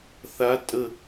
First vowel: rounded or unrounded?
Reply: unrounded